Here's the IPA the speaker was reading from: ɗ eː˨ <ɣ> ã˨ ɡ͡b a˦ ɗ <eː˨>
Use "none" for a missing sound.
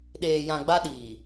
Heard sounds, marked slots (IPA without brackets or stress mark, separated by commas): j, iː˨